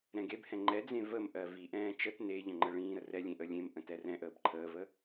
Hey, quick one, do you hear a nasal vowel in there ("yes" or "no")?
yes